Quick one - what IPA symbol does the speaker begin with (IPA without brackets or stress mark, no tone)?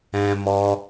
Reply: ɛ̃